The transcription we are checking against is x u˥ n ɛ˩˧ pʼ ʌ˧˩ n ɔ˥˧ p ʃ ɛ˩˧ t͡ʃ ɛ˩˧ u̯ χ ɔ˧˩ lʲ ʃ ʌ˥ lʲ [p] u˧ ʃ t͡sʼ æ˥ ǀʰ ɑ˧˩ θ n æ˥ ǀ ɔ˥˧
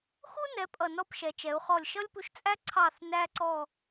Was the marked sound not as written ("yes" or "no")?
no